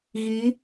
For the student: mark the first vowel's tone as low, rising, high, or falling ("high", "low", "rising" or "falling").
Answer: rising